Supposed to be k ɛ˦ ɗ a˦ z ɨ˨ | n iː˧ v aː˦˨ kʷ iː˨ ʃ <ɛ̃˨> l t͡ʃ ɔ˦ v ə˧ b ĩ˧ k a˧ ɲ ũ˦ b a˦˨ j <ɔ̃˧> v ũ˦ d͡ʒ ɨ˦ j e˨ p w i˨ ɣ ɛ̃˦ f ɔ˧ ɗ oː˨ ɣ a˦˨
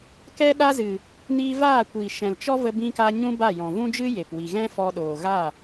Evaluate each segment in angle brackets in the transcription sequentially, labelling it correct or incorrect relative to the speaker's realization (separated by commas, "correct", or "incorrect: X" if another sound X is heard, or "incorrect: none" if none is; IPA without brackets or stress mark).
correct, incorrect: ɔ̃˨